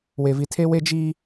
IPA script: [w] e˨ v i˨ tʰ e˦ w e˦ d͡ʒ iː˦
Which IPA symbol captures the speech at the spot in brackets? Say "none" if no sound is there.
w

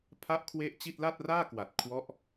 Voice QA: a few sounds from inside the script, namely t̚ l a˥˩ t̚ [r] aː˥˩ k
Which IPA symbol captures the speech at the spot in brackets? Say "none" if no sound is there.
r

